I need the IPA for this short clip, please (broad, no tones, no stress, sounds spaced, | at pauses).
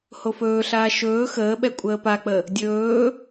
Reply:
h o f ɵː ɬ aː ʃ ɵː x əː ɓ ɛ kʷʼ əː p a k͡p ə | dʲ ɵː